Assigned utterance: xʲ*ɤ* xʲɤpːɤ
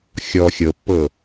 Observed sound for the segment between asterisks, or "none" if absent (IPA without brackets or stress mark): ɔ